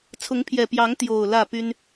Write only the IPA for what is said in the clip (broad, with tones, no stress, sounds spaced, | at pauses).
t͡sʰ ʊ˨˦ ŋ pʰ j ɛ˨˩ p j ɑ˨˦ ŋ t̪ j o˨˩ ʊ̯ l ä˥˨ p y˦ n